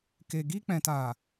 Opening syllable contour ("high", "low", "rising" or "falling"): low